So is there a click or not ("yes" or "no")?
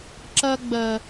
yes